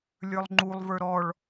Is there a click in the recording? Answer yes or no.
yes